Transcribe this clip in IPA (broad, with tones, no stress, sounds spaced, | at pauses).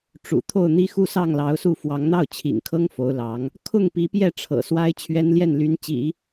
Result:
ʈ͡ʂ ṵ˨˩ t̪ʰ o˥˩ ʊ̯ n̪ i˥ x u˥˧ s ɑ˥˩ ŋ l ɑ˧˥ ʊ̯ s u˥˩ f w ɑ˧˥ ŋ n̪ ɑ˥˩ ʊ̯ t͡ɕʰ ḭ˨˩ ŋ kʰ ɤ˥ ŋ f o˧˥ ʊ̯ l ɑ˧˥ ŋ | kʰ ʊ˥˩ ŋ p i˧˥ p j ɛ˥˩ ʈ͡ʂʰ ɤ̰˨˩ s w a˥ ɪ̯ t͡ɕʰ ɥ ɛ˥ n l j ɛ˥˩ n l y˧˥ n t͡ɕ ḭ˨˩˦